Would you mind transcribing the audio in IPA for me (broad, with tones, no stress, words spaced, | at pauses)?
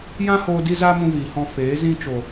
jã˦hoː˧ di˦za˦mũ˧ viː˨hɔ̃˧ feː˨˦ zĩ˧t͡ʃo˨